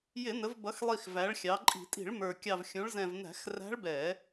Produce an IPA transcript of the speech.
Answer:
jɪ˧˩˧ nə˩˧vbʌ˩˧xlˠi˨˩x væ˩˧ɭxʲɑ˩˧ǃʼi̤˧˩˧tʼi̤˧˩˧ɭ mə˞˨˩ kʲɑ˨˩vxʲũ˩˧ɭ zɛ̃˨˩vnæ̤˧˩˧x ræ̤˧˥ɭbɛ˧˩˧

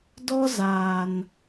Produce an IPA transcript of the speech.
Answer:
dɔ˦zaː˨n

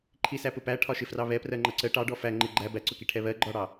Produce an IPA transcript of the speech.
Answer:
ǃʰisæpʊpæ ʈʰɒʃɪfrɑβɛ prɜŋ͡ǃʌǀə ʈɑɖɔ fæ ŋ͡ǃɪ ɡ͡ǃæ bæǀʊki ʈʰɛβɜ ɡ͡ǃɒɽɑ

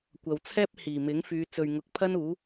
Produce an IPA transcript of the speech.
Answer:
kʷɐ˨wt͡sʰɛː˥p̚ hiː˨˩mɪ˨˥ŋ fyː˨˧ t͡sɵ˨ɥŋʊ˨˥k̚pʰɐ˥n uː˨˥

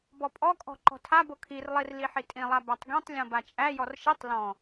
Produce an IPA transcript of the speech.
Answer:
bɔpʼɔkʼɔ̤ ǃɔ̤tʰabo kʰirlˠir liħitʼĩlˠa bætˤɡĩtˤlʲɔ̃ bat͡ʃʼæjɔr ʃitˤ lɔ̃

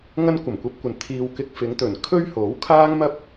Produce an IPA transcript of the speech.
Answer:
ŋɐ˥nkʷɐ˨˩mkʷɐ˧p̚kʷɐ˨n t̪ʰiː˨w kɪ˧k̚fɪ˨˧ŋt̪ɵ˨˩n kʰɵ˥ɥho˨˥wkʰaː˥ŋmɐ˥p̚

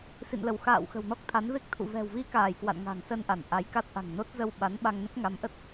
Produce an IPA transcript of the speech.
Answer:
sḭ˧˨nlə˧˩w xa̰ː˧˨w xə̤˨˩wnɔ˦˥k̚t̪ʰa˨˦n ve˦˥k̚t̪ʰṵ˧˨ vɛ̤˨˩wvi˧kaː˧˩j kwa̰˧˨nŋa̤˨˩ŋsə˧n ʔa˧˩nʔa˨˦j ka˦˥t̚ʔa̤˨˩ŋno˦˥t̚ zə˧wɓa˨˦nɓa˧ŋ nə˦˥p̚ŋa˨˦mʔə˦˥t̚

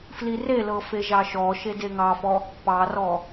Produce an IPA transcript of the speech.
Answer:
flirelɤ feʒɑʃɔʃe deŋɑfɔ | pɑrɔ

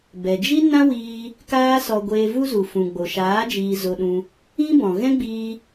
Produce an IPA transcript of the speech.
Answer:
bɛ˨d͡ʒi˦nã˦wiː˧ | kaː˦sɔ˧ ɡʷeː˧vu˦ zu˨fũ˨ɡ͡bo˨ʃaː˨˦ d͡ʒiː˧zo˧ɗũ˧ | ĩ˦bɔ̃˨ ɣɛ̃˦ɡ͡biː˧

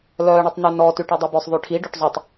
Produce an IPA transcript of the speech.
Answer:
lœːɳetˤnʉnɔ tyʈedˤebœsˤ ðˤyʈʰi ɖoʈzˤutˤ

